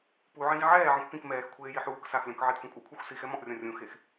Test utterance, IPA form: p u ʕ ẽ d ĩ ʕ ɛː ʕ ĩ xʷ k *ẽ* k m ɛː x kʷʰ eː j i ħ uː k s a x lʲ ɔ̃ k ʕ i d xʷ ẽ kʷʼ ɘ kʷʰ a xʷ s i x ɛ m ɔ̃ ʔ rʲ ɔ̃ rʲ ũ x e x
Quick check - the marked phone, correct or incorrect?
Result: incorrect